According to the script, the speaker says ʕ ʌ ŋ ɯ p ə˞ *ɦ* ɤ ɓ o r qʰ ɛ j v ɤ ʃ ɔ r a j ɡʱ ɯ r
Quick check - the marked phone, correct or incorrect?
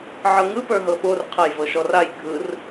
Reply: correct